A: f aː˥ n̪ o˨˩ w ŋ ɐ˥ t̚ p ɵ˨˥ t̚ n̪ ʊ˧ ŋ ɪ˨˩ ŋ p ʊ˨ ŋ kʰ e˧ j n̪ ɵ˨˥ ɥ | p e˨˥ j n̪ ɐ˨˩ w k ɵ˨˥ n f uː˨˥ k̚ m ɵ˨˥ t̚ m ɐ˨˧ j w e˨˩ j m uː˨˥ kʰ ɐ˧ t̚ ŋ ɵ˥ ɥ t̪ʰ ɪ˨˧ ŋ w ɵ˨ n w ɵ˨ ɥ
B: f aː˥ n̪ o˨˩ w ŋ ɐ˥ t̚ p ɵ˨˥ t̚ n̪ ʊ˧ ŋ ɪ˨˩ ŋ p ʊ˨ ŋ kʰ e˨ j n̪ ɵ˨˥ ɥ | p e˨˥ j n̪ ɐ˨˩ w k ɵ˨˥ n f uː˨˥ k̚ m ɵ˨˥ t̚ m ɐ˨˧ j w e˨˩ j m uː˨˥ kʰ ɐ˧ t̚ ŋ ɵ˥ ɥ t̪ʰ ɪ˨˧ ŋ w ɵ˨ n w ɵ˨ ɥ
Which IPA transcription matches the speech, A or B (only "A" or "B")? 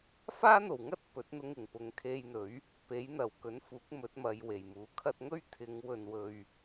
A